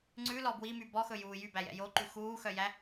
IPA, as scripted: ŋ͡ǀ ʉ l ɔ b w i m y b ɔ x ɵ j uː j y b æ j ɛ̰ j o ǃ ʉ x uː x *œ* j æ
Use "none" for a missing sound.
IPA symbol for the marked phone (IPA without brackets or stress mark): œ